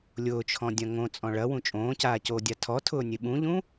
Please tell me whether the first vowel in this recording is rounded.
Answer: yes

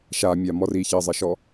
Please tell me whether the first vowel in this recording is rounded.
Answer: no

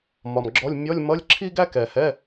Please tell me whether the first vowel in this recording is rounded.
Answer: yes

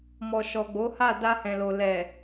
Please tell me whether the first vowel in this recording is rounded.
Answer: yes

